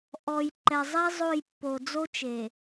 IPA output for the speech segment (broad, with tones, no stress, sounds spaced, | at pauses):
ʔ ɔ˨ j ǃ ɛ˨ zˤ i˦ zˤ o˦˨ j pː o˨ d͡z o˦ t͡ʃ e˨